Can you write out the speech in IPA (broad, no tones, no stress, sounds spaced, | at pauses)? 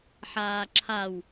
ħ aː ǁʰ a w